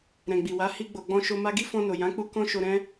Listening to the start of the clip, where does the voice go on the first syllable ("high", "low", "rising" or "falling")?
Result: low